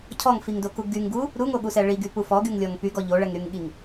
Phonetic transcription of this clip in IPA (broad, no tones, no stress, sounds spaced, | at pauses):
cʰ ɔ ŋ f i ŋ d o k u ɡ y ŋ ɡ u | ɾ u ŋ o ɠ u s ɛ ɭ i ɡ y p u f ɔ ɡ y ŋ lʲ ɔ ŋ p y ɡ ɔ ʎ o ɭ ɛ ŋ ɾ y ŋ ɠ i ŋ